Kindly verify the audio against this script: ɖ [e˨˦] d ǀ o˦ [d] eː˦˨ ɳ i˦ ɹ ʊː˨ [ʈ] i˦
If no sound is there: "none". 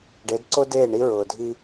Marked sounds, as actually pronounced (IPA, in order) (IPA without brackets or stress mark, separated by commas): e˨˦, d, dʱ